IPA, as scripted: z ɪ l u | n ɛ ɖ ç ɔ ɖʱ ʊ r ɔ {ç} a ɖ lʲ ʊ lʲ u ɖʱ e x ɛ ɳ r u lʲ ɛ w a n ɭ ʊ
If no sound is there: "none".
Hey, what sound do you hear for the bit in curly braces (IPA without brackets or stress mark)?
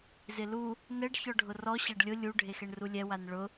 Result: ɕ